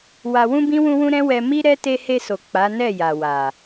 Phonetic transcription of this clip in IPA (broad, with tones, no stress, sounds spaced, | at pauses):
w a˧ w ũ˦ b ĩ˦ w ũ˦ w ũ˦ ɾ ɛ̃˦ w ɛ˧ m i˦ ɾ ɛ˦ t e˧ h e˧ s o˨ k͡p a˨˦ n ɛ˦˨ j a˨ w a˨